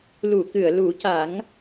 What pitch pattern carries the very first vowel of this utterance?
low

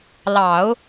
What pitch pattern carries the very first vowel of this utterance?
low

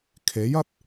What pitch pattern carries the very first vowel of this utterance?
rising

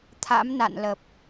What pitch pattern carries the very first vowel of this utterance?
rising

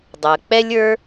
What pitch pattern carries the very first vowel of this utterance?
low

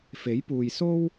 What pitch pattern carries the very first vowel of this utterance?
rising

